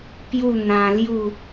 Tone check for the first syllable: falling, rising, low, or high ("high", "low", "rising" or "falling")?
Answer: falling